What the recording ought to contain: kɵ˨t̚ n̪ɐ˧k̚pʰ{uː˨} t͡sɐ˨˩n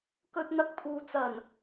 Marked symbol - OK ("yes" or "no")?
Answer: yes